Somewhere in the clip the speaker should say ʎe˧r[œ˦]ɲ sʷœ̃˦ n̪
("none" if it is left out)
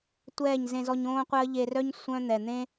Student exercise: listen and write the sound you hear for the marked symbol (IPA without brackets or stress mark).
œ˦